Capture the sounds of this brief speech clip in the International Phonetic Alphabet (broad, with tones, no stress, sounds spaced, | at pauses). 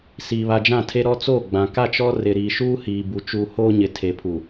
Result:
s iː˨ β a˨ d͡ʒ ã˦˨ tʰ e˦ ɾ ɔ˦ t͡s oː˦˨ ɡ͡b ã˨ k a˦˨ t͡ʃ ɔ˦ r ɪ˨ ɾ i˨ ʃ uː˦ h iː˨ b u˨ t͡ʃ uː˨ h oː˦ ɲ ɪ˨ tʰ e˨ pʰ u˨